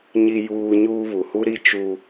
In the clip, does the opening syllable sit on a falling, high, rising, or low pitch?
high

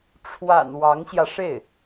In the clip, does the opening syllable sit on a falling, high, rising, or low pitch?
low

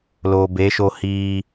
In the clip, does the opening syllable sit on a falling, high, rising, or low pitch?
low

